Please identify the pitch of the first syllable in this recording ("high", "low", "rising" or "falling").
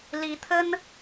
rising